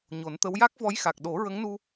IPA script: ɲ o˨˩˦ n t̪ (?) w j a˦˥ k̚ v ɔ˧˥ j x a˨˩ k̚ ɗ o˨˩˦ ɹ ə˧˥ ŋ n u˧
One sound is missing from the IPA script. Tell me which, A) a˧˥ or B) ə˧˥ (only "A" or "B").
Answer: B